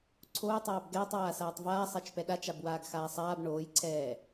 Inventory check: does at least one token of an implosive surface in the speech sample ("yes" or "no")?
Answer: yes